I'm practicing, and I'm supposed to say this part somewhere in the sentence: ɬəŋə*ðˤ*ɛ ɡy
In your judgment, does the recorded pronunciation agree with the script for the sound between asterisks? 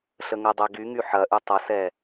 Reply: no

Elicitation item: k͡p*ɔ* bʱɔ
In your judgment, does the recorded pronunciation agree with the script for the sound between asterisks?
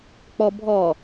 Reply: yes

